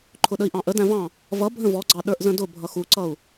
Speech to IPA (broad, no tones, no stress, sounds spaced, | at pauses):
ǃʰ ʊ ɗ ə i̯ ʔ ɑ̃ ʔ ə d æ̃ v ɑ̃ | v ʌ bʱ ə̃ v ɔ ɡ͡ǀ ɑ ɗ ə˞ ʔ z ə̃ d ʊ bʱ ʌ x u ǀ ʌ u̯